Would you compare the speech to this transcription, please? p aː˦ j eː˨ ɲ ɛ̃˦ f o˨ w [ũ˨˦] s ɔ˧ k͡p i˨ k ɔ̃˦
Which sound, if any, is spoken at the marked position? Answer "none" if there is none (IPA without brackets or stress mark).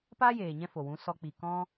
ũ˨˦